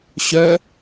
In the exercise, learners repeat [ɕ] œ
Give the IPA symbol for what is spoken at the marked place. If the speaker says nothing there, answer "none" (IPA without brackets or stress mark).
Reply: ɕ